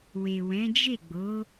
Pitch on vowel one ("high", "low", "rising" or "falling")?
low